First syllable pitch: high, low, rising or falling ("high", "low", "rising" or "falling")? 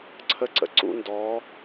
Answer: high